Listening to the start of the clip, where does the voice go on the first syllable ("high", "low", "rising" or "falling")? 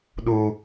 high